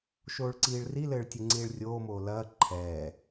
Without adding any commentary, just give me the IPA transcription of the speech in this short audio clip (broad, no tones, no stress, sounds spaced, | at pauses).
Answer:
ʃ oː ɭ ǀ iː ɭ r i l ɘː ɭ tʲ e ŋ͡ǀ iː ɭ rʲ oː m oː l ɐː ǃʰ ɛː